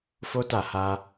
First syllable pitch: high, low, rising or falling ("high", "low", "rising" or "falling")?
high